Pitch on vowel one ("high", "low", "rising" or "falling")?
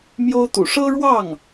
high